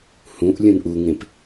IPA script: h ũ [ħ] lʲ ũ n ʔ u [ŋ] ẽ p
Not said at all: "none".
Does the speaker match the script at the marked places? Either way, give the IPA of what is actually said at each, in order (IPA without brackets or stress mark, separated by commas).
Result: ʔ, ŋ